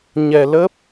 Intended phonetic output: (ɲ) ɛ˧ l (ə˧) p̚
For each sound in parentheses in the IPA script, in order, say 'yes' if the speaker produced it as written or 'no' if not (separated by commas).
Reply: yes, no